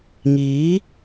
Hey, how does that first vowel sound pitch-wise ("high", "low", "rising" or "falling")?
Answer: rising